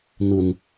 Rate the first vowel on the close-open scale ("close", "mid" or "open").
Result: close